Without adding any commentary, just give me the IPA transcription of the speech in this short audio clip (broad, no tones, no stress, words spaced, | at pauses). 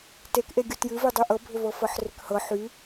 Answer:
tekʔeɡʲu tjɨvydˤy ʔɤbʱʏvɤfɤħ rʏkhɤ ħy